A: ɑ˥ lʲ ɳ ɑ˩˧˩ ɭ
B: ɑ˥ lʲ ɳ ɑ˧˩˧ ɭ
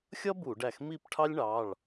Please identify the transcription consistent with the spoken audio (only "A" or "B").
A